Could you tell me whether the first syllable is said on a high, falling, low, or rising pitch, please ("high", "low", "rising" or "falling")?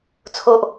high